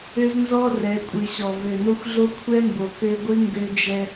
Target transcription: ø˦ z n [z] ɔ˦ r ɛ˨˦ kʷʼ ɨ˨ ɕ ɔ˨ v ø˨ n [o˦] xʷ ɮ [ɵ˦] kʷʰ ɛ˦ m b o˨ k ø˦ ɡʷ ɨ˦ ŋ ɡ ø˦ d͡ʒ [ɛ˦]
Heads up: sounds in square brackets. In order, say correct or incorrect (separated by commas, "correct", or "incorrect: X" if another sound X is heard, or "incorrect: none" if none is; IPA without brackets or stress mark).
correct, correct, incorrect: o˦, correct